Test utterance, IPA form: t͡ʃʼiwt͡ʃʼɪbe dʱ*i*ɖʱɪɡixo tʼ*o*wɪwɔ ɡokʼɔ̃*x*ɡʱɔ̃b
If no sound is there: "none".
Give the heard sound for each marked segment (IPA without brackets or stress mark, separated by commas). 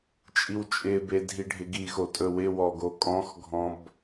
i, ɵ, x